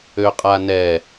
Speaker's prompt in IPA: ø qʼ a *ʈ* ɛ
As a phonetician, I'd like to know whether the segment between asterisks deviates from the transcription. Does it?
yes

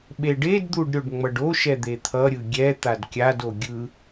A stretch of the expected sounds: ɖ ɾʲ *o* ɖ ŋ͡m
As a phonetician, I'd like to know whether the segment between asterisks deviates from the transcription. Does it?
no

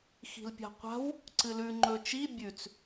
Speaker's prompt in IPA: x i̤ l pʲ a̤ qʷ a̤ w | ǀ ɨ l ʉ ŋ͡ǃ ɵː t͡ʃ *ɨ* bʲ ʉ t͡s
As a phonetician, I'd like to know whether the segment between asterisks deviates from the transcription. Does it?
yes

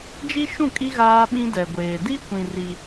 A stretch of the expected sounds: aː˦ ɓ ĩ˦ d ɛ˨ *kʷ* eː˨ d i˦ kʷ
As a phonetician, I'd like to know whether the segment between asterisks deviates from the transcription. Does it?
yes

